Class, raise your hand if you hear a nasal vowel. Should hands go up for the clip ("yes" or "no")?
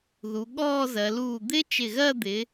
no